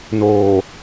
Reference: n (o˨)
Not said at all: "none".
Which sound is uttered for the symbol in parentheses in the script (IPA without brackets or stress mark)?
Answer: oː˨